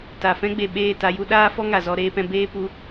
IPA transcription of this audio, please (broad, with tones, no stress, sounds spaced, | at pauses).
t a˨ f ɛ̃˦ ɡ͡b e˨ ɓ eː˦˨ t a˧ j u˦ ɗ aː˦ f ɔ˦ ŋ a˨ z ɔ˧ ɾ eː˧ p ɛ̃˧ b eː˦ p u˧